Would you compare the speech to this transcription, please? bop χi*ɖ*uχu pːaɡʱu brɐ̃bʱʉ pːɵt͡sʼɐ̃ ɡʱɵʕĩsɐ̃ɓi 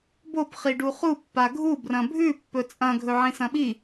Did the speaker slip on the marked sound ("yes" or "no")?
no